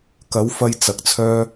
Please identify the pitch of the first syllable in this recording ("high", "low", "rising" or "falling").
rising